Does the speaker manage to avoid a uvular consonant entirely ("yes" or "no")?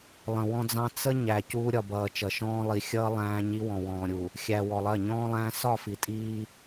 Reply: yes